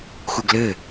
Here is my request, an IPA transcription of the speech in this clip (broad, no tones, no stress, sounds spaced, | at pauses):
x u ɡ l ɘ